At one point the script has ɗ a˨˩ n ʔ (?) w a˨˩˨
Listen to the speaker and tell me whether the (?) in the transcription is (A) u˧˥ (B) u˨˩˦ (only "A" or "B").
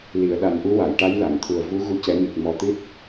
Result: A